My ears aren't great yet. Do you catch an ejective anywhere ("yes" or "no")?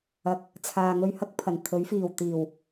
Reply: no